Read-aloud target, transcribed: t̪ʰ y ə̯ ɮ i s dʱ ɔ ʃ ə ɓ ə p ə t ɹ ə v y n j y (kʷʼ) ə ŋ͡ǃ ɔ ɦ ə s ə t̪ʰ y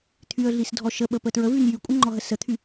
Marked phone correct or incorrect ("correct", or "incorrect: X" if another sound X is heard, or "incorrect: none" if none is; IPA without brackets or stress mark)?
correct